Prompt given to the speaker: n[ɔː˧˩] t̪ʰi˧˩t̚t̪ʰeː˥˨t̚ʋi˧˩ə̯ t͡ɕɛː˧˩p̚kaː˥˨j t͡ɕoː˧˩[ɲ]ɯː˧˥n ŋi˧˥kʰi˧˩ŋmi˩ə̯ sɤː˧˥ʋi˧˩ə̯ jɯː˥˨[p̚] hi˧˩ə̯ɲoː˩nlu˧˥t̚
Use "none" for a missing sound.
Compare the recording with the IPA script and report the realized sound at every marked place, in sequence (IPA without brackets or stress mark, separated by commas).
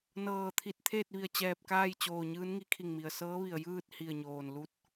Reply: ɤː˧˩, ɲ, t̚